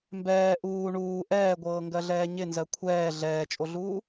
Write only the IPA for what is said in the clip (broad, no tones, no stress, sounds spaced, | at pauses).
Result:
m b ɛː ʔ uː ɳ uː ʔ ɛː ɡʷ ɤː ŋ ɡ ɜ ɮ ɛː ɲ ɪ n z ɜ kʷʰ ɛː ɮ ɛː t͡ʃʼ o ɮ uː